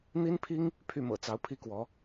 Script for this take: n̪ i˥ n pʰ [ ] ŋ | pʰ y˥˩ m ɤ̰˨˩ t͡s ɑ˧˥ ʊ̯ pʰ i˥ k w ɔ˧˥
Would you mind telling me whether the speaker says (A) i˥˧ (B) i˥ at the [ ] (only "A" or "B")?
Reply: B